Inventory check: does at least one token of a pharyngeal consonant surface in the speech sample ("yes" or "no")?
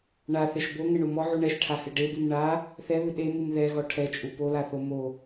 yes